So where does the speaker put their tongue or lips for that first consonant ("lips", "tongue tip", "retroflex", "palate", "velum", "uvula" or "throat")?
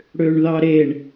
retroflex